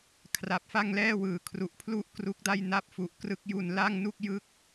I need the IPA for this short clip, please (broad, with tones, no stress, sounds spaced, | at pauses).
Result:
kʰ r a˨˩ p̚ f a˥˩ ŋ l ɛː˥˩ w ɯː˨˩ kʰ r u˨˩ ʔ pʰ l u˥˩ ʔ k r u˦˥ k̚ d a˥˩ j n a˦˥ p̚ f u˨˩ ʔ k r ɯ˦˥ k̚ j u˧ n l a˥˩ ŋ n u˥˩ k̚ j ɯ˥˩ k̚